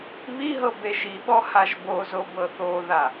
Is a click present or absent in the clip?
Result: absent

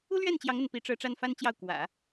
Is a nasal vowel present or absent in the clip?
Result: absent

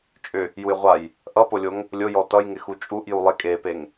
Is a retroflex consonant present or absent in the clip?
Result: absent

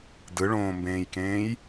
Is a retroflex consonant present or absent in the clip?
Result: present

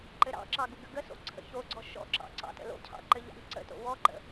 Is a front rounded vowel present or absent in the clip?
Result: absent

